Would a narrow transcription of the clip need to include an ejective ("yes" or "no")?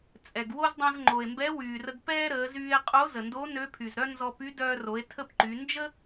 yes